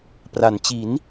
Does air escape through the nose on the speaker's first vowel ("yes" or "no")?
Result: no